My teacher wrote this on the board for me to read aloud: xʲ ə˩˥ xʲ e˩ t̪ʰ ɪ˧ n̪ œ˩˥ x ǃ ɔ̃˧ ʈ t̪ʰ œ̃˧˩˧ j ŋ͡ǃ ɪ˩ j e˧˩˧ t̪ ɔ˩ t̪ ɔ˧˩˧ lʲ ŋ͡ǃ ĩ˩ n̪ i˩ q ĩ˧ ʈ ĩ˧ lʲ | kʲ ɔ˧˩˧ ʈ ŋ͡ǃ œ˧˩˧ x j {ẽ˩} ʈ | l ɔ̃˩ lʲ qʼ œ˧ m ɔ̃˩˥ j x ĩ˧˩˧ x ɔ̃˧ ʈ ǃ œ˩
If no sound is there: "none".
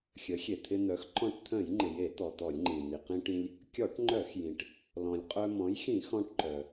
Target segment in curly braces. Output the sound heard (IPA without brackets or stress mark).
ĩ˩